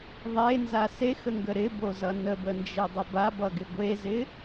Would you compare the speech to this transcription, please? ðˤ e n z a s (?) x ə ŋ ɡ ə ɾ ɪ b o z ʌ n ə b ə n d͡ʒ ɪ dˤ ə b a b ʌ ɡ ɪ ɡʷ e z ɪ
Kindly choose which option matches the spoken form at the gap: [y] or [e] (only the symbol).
e